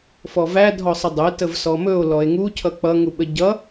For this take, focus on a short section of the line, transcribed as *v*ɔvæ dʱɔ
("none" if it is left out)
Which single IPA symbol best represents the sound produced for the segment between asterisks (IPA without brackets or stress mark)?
f